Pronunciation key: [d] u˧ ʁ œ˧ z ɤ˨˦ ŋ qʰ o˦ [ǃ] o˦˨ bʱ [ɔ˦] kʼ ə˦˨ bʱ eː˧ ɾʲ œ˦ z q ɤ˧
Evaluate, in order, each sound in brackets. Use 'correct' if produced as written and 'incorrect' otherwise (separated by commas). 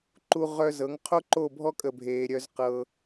incorrect, correct, correct